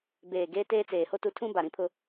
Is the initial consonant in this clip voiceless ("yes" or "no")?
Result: no